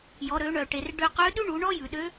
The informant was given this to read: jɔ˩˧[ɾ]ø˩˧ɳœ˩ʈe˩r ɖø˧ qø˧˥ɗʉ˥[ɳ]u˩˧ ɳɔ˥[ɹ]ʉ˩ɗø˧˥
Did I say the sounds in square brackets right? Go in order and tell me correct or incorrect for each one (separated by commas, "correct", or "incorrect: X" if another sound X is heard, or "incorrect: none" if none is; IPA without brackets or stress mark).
correct, correct, incorrect: j